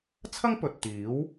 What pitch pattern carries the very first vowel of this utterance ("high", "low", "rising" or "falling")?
high